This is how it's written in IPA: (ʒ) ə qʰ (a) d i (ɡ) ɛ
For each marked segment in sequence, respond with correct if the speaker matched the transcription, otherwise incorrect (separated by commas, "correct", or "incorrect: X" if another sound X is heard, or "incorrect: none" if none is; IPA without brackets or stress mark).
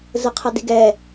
incorrect: z, correct, correct